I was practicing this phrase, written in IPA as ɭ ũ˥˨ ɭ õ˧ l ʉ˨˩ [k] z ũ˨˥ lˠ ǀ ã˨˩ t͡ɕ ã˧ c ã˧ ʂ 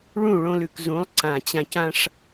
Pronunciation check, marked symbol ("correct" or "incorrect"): correct